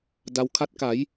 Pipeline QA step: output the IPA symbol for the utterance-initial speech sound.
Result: d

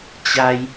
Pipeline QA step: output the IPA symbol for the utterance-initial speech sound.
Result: t͡ɕ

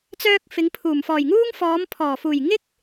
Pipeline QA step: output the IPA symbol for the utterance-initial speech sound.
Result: t͡s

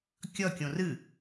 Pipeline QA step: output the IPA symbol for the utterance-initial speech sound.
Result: kʲ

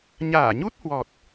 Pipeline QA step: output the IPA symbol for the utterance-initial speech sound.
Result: ɲ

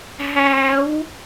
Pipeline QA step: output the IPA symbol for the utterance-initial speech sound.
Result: ɦ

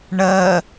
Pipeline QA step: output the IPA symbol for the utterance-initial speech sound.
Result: ɳ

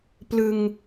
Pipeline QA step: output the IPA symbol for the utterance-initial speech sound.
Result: p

